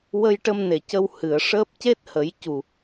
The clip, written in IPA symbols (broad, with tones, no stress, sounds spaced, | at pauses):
w ə˧ j ʈ ə˧ m n e˨˩ c ə˧ w h ɨ˨˩˨ ə̯ ʂ əː˦˥ p̚ c e˦˥ t̚ h ə˨˩˦ j c u˨˩